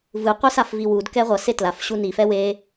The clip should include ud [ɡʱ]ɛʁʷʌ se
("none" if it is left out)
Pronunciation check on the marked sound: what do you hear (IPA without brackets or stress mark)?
k